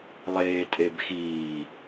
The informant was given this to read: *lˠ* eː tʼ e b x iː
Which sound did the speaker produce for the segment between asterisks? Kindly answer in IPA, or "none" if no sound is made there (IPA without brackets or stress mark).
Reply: lˠ